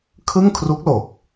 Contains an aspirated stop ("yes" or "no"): yes